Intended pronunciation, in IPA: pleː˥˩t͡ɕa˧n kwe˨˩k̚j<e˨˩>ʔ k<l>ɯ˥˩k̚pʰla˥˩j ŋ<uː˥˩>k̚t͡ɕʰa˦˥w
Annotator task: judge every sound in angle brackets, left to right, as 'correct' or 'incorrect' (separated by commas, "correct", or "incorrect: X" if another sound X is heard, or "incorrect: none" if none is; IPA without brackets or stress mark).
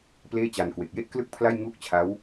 incorrect: e˥˩, correct, correct